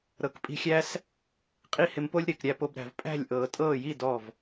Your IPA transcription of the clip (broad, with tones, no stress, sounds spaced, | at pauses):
ɾ ɤ˨˦ k pʼ i̤˧ xʲ æ˦ s | qʼ i˦ h ɪ˧ m p o˦ lʲ ɾ ɪː˨ k ɾʲ æ˧ p o˧ b ɾ æ̤˨ v pʼ æ̤˦˨ lʲ ʔ ɤː˨ tʼ ɤː˦˨ j i˦˨ d ɔ˦˨ v